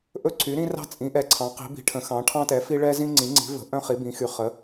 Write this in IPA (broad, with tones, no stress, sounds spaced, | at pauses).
ʔ ɵ˥ ǀʰ y˩˥ ɾ ĩ˥ r ɑ̤˥ t͡sʼ ĩ˩˥ ʔ ɛ˩˥ ǀʰ ɑ̃˩˥ q i̤˩˥ b i̤˩˥ ʈʰ ə̃˩˥ x ɑ̃˩˥ ʈʰ ɑ̃˥ t ɛ˩˥ f i˥ ɭ ɛ˥ z ĩ˥ ŋ͡ǀ ĩ˩˥ ŋ͡ǀ i̤˩˥ v ə̤˩˥ ʔ œ̃˥ χ i˩˥ b ĩ˩˥ x y˩˥ χ ə˩˥